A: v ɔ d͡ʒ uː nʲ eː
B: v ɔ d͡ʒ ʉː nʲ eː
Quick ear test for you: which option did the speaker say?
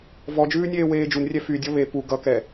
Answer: B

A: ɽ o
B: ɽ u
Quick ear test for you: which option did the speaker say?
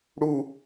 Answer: B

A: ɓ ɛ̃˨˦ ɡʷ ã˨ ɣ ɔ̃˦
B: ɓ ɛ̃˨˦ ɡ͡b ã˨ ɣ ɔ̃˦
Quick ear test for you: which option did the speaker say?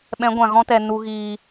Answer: A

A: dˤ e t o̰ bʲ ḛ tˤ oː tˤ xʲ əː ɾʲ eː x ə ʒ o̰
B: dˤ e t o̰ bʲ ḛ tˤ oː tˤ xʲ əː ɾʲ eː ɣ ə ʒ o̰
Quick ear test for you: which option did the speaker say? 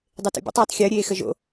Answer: A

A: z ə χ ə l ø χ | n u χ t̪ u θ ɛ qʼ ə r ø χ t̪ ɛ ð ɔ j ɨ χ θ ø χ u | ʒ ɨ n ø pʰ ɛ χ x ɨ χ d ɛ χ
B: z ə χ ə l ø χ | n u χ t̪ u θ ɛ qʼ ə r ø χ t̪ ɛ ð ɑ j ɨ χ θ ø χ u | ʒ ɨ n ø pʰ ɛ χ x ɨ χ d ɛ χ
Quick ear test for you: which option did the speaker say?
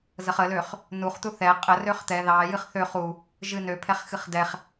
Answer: B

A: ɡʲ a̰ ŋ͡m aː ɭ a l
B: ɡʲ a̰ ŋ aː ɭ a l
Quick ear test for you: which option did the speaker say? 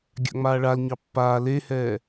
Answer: A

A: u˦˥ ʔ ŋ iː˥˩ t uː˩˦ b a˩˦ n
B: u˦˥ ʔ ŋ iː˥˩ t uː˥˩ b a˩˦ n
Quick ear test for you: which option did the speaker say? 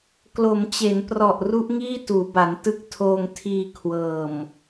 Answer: A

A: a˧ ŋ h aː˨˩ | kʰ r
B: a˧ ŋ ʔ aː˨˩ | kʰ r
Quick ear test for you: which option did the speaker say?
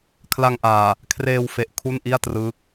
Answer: B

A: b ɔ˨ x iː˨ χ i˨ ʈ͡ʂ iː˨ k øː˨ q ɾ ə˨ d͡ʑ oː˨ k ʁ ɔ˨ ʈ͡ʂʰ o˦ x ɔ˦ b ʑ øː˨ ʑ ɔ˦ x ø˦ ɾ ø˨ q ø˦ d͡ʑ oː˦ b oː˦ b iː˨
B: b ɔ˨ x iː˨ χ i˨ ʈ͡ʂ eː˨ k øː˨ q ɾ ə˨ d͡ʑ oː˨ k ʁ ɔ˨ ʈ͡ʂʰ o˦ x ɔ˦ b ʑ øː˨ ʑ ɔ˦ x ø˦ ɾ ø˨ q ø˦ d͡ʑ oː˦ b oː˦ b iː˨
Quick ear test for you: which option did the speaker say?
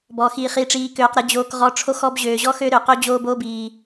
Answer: A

